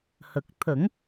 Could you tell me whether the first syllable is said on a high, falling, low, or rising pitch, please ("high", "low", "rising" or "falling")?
low